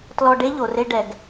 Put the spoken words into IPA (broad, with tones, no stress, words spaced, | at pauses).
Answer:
tlɔ˧ɖe˦ʎo˨re˧ ɖɛ˨ɡ